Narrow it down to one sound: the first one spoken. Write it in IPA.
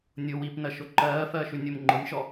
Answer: nʲ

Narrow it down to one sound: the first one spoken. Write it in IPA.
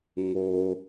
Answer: ŋ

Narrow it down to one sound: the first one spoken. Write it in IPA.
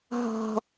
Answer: ɦ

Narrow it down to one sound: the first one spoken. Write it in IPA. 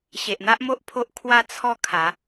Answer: ɕ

